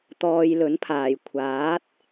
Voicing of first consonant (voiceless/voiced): voiceless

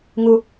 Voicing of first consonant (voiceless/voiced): voiced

